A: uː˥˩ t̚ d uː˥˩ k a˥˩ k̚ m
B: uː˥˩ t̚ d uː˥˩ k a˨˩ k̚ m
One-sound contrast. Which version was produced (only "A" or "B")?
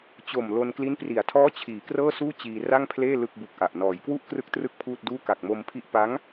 B